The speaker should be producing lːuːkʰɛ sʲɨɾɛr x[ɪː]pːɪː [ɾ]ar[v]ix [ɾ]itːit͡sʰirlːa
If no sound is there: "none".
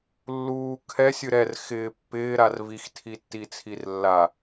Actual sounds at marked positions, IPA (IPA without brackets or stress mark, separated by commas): ɪː, ɾ, v, tʰ